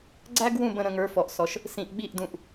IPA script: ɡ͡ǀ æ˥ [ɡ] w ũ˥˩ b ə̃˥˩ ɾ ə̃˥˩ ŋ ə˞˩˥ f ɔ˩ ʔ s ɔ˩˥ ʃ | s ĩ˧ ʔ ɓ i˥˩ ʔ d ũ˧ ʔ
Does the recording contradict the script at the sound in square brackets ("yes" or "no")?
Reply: no